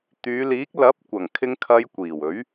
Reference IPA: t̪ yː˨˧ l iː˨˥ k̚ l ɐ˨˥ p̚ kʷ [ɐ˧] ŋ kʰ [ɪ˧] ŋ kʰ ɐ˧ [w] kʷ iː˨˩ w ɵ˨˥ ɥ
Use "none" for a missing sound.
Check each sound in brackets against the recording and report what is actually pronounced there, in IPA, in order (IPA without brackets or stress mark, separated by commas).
ɐ˨˩, ɪ˧, j